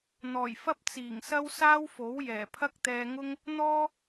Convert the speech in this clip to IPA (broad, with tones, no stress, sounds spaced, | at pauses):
n̪ ɔː˨˩ j f ɐ˥ p̚ t͡s iː˨˩ ŋ s ɐ˥ w s aː˥ w f o˨˥ w j ɛː˨˩ pʰ ɐ˥ k̚ t̪ ɛː˧ ŋ ʊ˥ ŋ | n̪ ɔː˥